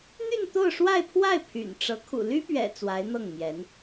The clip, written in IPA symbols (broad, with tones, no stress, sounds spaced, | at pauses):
n̪ y˥˧ n t̪ o˥˧ ʊ̯ ʂ w a˥˧ ɪ̯ pʰ w a˥˩ ɪ̯ pʰ y̰˨˩ n ʈ͡ʂ ɤ˧˥ kʰ ṵ˨˩ l y˥ p ɥ ɛ̰˨˩ t͡s w a˧˥ ɪ̯ n̪ ɤ˥˩ ŋ m j ɛ˧˥ n